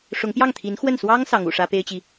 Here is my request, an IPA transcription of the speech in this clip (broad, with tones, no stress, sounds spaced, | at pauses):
ʂ ʊ˧˥ ŋ p j ɑ˥˩ ŋ t̪ʰ i˧˥ n x w ə˥˩ n s w ɑ˥ ŋ s ɑ˧˥ ŋ ṵ˨˩ ʂ ä˥ p e˥ ɪ̯ t͡ɕ i˨